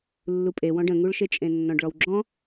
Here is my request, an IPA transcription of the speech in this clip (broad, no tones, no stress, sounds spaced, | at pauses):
lː u pʼ e w ɔ̃ ɖ ə̃ ŋ u ɭ ʃ e t͡ʃʼ ẽ nː ɔ̃ ɖ ɭ ɔ w ɡ͡ǁ ɔ̃